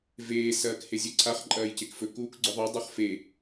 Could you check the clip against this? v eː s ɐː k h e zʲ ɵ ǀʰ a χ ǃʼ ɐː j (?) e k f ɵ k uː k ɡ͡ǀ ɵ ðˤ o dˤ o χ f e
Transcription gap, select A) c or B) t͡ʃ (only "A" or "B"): A